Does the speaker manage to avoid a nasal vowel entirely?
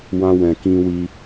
no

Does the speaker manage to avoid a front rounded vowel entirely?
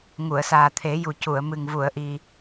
yes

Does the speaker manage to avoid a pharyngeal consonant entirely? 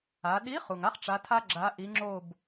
yes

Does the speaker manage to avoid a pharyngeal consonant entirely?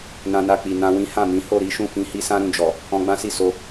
yes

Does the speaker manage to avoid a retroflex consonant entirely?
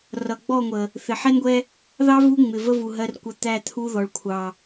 no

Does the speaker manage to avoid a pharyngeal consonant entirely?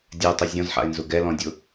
no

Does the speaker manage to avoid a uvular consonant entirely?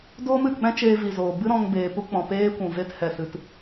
yes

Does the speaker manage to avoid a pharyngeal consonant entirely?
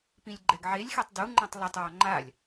no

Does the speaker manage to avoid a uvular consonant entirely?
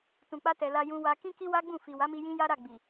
yes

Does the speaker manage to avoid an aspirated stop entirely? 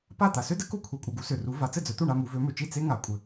no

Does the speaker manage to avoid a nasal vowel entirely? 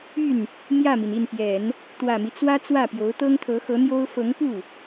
yes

